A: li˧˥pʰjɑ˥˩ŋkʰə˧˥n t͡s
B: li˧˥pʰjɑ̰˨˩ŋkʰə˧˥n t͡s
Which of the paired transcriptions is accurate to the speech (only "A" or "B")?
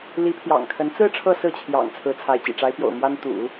B